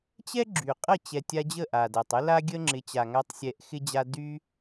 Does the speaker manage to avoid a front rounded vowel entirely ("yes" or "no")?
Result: no